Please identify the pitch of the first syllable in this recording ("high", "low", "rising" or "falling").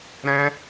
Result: high